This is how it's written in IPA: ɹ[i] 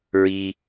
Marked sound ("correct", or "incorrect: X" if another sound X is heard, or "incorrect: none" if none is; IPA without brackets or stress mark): correct